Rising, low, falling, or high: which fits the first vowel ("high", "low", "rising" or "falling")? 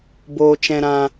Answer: low